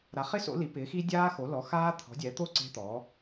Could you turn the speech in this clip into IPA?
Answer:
ɾ a˩˥ χ ɪ˦˥ s o̰˩˥ l i˩˥ p ɪː˩˥ x i˦˥ dʲ aː˦˥ x o˩˥ l ɔ˩˥ x aː˦˥ t̪ʰ ɔ̤˩˥ dʲ ɛː˩˥ t̪ o˦˥ ǀ e̤˦˥ t̪ ɔː˩˥

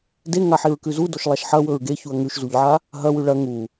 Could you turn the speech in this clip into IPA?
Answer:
d e ŋ a ħ i ɹ k ʉ z u d o ʃ lˠ a ʃ ħ ɐ w ɵ ɹ ɡ e ç u ɐ̯ ŋ ʉ ʃ z u ʎ ʕ a | ɦ ɐ w ʉ ɭ ɐ ŋ u

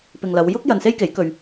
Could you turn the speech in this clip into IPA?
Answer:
p ɪ˨ ŋ l ɐ˨˧ w j ʊ˥ k̚ j ɐ˧ n s e˥ j k e˨˥ j k ɵ˧ ɥ

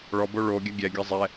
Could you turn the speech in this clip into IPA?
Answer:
ɭ ɔ b o ɭ o ɡʲ ɐ ɡʲ ɛ ɡʲ ɐ zˤ ɛ

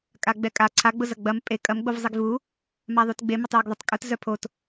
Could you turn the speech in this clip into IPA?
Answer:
kʼ a ɡ͡b ɛ kʼ a ǀʰ a ɡ͡b ʊ z ɐ ɡ͡b ɐ m pʼ e kʼ ɐ m ɡ͡b o v zˤ i ɡ v u | m a ðˤ u t ɡ͡b e m ə tˤ j ø ɡ ðˤ ə tˤ kʼ ʊ t z œ pʰ o t

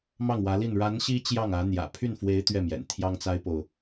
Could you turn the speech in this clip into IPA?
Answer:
m ɑ˥˩ ŋ w ä˧˥ l i˥˩ n ɻ a˧˥ n ɕ i˥ t͡ɕ j ɑ˥˩ ŋ ä˧˥ n̪ j ä̰˨˩ pʰ y˥˩ n f w e˧˥ ɪ̯ t̪ ɥ ɛ˥˩ m j ɛ̰˨˩ n t̪ʰ j ɑ˥ ŋ t͡s a˥ ɪ̯ p o˨ ʊ̯

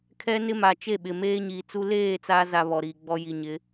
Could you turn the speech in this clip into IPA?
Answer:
kʰ ɛ˦ n ɪ˦ m a˨ t͡ʃ e˦˨ ɓ ɪ˨ m eː˦ ɲ iː˨ t͡s u˦ l eː˦˨ t͡s a˦ z a˨ β ɔ˨ ɾ iː˨ ɡ͡b ɔ˦ j i˨ ɲ ɪ˨˦

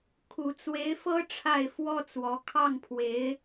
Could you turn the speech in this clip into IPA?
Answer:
kʰ u˨˩ t͡s w e˧˥ ɪ̯ f ɤ˥ ʈ͡ʂʰ a˥˩ ɪ̯ f w ɔ˥ t͡s w ɔ˧˥ kʰ ɑ˥˩ ŋ pʰ w e˧˥ ɪ̯

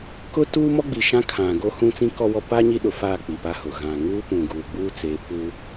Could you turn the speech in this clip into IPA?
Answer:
k ʊ˦ t uː˦ m ɔ˦ ɡ͡b i˨ ʃ ã˦ kʰ ã˨ ɡ o˦ h ũ˦ t͡s ĩ˦ k ɔ˦ w ɔ˦ p a˦ ɲ i˦ ɗ ʊ˨ f aː˦˨ k͡p i˨ p a˦ h ʊ˨ ɣ ã˨ ŋ uː˦ p ũ˨ ɡ uː˨ ɡ͡b uː˦ t͡s e˨˦ p uː˦

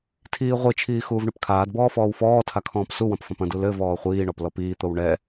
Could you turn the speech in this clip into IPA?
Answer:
tʰ iː ʁʷ i t͡ʃʰ iː x uː v ɳ ɨ p kʰ aː d b ɔː f ɔː w f ɔː tʰ a kʰ ɔ̃ː p s u w ɐ̃ p f ɐ̃ p ɐ̃ d u l ɘ v ɔː χʷ iː ɳ ɔ p l ɔ p iː t̪ o w ɳ ɛ

